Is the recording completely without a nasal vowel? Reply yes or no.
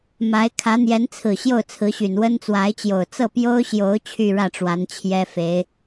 yes